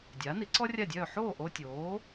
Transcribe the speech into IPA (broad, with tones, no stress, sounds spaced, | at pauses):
dʲ aː˩˥ n i˩˥ ǀ ɔ˥ rʲ a˥˩ dʲ œː˥˩ ħ oː˥˩ ʔ o˧ tʲ oː˩˥